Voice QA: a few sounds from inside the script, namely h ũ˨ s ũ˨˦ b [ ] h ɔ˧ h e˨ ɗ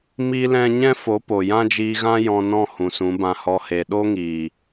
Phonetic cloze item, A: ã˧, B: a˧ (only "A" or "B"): A